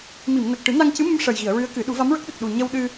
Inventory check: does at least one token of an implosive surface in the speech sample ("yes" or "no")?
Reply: yes